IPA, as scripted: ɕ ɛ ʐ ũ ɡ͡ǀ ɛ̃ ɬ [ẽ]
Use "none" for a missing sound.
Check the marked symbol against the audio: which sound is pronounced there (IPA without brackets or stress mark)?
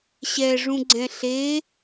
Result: e